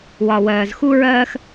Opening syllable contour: low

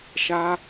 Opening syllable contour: high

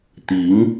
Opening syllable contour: rising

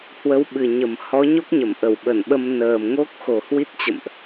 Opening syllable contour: rising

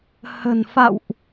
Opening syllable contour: low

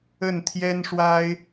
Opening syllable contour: falling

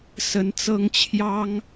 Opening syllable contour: rising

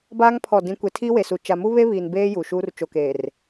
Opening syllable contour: high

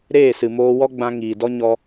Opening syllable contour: falling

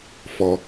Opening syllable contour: low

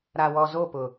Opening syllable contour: low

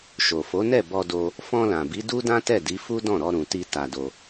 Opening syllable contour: low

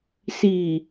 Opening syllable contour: low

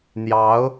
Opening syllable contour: rising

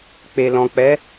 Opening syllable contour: low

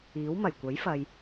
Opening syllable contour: rising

